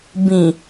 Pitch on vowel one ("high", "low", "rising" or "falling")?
low